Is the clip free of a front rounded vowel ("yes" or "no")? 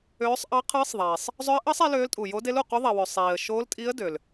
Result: no